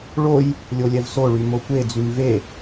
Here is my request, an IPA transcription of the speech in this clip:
ɭ o j | lʲ o lʲ ɛ v s o ɭ y m o kʷ e d͡z y m v e

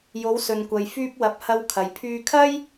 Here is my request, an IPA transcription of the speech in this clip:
j o˨˧ w s ɵ˨ n kʷ ɐ˨ j f yː˧ p̚ w ɐ˨˥ p̚ h ɐ˧ w kʰ ɐ˨ j pʰ yː˧ kʰ ɐ˥ j

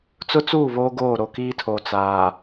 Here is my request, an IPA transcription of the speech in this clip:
t͡s ʊ˦ t͡s uː˦˨ β oː˦ ɡ oː˦˨ ɾ o˨ k iː˦ tʰ oː˨ t͡s aː˨

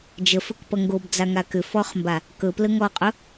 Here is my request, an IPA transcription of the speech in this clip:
d͡ʒ ə f ɵ k p ʌ ŋ ɡ o b d͡z a ŋ a k ʏ f ɔ χ m b a | k ɵ p l ə ŋ ɔ qʼ ɵ

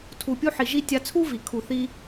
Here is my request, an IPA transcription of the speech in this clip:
tʰ u˨ pʲ u˧ ħ i˨ ʒ i˧ tʲ a˧ t͡sʰ u˦ v i˨ kʰ u˨ θ i˧

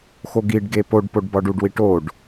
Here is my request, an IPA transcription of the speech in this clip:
x o ɡ i ɖ ɡ e p o ɖ p o ɖ b ɒ ɖ u ɖ w i ʈ o ɖ

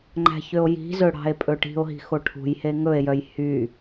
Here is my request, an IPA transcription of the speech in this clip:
ŋ͡ǃ æ̤ ç ø o̯ j i̤ z ɵ ɽ ɑ̤ e̯ pʼ ɵ ʈ i̤ o̯ ɦ i̤ x o ʈʰ ṳ j h e ŋ ɵ e̯ j œ j h y

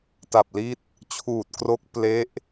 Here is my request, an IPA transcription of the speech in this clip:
t a˨˩ p̚ l i˦˥ t̚ | t͡ɕʰ uː˨˩ t̚ k r o˦˥ k̚ p l e˦˥ ʔ

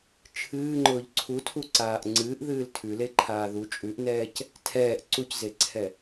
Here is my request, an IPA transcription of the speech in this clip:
t͡ʃʰ ɨː ŋ͡ǃ ʊː ʎ ǀʰ u tʰ u ǀ aː ʔ ŋ͡ǀ ɨː ʔ ð ɨː l tʰ ʉ l e ǃʰ aː ð u t͡ʃʼ ʉ ʔ n ɛː c | tʰ ɛː ʔ ǀ u c z e ǀʰ ɛ

